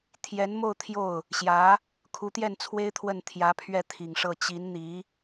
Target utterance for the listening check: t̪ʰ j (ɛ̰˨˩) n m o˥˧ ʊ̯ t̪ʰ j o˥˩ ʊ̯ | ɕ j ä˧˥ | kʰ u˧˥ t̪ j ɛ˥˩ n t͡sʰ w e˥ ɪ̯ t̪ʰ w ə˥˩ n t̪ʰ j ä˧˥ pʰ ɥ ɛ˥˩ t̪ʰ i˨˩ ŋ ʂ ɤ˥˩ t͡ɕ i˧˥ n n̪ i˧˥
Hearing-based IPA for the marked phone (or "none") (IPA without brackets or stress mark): ɛ˧˥